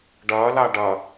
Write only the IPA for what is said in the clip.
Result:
ɖɐːla ɖɐ

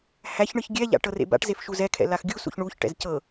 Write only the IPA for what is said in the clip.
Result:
hæçɳɯç ɡʲɛʎa̰ ʈɤrḛba̰ʈzef ʃuzɛkʰɛ̰ laxɡʲusṵç ɳuçʈɛ̰z cɤ

